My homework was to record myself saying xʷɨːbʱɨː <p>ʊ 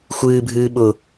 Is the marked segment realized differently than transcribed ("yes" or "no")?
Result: yes